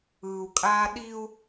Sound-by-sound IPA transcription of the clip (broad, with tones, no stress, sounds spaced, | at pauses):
ɯː˨ u̯ kʼ aː˦ ɗ i˦ u̯